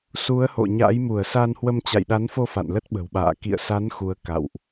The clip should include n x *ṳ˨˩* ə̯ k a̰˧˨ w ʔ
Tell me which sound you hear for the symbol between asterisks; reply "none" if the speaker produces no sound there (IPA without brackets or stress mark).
u˨˦